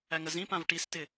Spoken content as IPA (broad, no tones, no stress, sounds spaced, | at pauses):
æ ŋ ə z ĩ p ã v ʈ i s t ɪ